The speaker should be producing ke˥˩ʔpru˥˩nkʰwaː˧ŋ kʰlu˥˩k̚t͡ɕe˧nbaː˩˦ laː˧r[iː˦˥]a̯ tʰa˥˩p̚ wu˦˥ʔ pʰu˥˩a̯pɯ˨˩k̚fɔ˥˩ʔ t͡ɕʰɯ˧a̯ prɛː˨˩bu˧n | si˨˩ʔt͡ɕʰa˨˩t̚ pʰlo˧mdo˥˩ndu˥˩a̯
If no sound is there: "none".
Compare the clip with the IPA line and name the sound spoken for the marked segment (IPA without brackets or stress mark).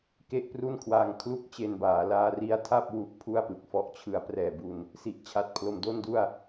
i˦˥